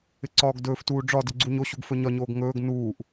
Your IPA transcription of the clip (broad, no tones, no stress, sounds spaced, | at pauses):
ɪ ǀ ɒː ɡ d ɵː f t uː ɖ͡ʐ ɒ d ɪ ɡ͡ǀ u ɲ o ɕ u ɡ f ɵ ɲ ɒ ɲ oː ɡ ŋ ɵː ɡ n uː ʔ